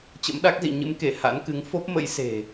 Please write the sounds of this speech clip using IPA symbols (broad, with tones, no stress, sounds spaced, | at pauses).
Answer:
t͡ɕ ə̰˧˥ m ɗ a˦˥ k̚ z ḭ˧˨ ɲ ɨ̰˧˥ m k e˧˩ h a̰˧˥ n k ɨ˨˦ ŋ f o˦˥ p̚ m ə̰˧˥ j s e̤˨˩